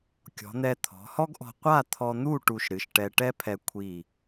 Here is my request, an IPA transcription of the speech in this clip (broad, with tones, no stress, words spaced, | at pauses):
kʲɔ̤˩˧n̪ɛ˧ t̪ʰɔ̤˩˧hɔ˥ɡʔɔ̤˧ qʷa˥˧t̪ʰɔ˧n̪u˥˧ ʈu˧ʃɾɨ˩˧ʃʈɛ˧ ʈɛ˥pʰɛ˧ kʷʰi˧˩